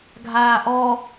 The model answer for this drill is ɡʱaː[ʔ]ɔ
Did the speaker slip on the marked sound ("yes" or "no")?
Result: no